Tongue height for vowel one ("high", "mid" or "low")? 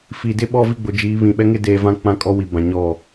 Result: high